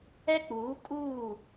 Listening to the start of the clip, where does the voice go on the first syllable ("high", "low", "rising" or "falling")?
high